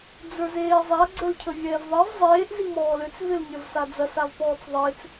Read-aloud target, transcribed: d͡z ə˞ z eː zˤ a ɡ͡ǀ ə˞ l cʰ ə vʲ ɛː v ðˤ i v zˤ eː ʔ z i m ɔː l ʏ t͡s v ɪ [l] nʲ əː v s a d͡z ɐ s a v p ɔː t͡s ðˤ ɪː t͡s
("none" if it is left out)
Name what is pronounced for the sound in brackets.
l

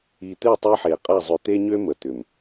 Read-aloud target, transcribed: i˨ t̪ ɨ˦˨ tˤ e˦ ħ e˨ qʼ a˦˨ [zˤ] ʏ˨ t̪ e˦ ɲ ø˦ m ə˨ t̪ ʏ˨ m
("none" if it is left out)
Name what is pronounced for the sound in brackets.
zˤ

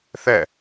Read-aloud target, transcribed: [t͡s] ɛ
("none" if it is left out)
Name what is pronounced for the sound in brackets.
θ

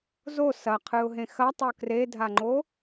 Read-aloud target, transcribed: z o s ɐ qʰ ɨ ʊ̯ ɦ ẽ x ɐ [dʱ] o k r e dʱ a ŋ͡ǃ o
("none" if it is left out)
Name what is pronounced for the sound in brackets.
tˤ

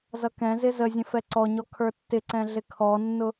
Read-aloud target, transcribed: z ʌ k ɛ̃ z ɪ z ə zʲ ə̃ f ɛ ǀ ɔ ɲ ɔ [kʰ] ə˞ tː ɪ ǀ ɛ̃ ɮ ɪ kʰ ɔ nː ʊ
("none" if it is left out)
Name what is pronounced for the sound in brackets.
kʰ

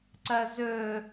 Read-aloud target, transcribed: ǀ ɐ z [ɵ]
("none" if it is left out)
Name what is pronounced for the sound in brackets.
ɵ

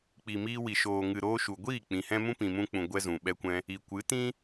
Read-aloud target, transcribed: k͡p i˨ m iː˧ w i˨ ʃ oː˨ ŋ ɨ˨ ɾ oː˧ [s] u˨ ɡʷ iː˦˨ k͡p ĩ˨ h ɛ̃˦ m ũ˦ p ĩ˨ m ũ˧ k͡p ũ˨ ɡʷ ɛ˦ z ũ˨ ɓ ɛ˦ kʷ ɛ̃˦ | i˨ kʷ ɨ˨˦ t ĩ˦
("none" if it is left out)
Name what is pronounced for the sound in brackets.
ʃ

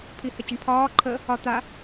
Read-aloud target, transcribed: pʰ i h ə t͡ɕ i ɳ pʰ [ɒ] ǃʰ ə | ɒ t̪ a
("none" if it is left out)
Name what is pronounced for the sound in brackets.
ɒː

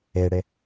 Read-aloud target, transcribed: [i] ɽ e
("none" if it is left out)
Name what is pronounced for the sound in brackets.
e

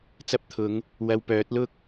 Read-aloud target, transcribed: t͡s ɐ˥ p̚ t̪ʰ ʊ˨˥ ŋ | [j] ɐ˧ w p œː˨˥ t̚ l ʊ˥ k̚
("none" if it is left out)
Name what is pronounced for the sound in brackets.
w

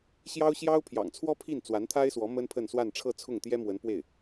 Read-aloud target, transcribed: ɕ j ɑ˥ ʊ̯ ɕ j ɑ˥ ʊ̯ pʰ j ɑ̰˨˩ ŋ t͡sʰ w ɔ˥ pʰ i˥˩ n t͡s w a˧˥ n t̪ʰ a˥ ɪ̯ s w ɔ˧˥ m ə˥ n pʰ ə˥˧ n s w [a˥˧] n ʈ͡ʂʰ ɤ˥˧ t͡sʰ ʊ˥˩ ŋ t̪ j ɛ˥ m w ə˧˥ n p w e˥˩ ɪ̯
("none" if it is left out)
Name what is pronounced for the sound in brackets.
a˥˧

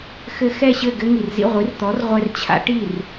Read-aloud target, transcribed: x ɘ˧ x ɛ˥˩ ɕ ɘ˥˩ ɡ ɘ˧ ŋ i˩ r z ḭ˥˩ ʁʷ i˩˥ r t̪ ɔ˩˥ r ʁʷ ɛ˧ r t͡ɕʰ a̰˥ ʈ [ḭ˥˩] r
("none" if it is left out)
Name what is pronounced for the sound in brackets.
i˥˩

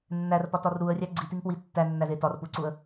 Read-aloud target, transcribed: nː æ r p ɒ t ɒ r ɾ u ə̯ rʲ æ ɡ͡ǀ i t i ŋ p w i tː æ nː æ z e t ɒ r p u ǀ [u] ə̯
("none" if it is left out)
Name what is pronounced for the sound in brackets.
u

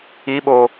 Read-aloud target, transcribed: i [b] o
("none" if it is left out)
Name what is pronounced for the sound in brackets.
ɓ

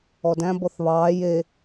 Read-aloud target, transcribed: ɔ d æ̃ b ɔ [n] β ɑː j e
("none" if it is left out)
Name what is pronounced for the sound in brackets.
θ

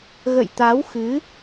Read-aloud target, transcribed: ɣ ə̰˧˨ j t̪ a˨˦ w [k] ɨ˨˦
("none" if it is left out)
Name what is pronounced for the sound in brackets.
x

